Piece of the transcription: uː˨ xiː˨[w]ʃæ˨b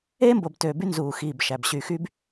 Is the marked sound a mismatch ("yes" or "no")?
yes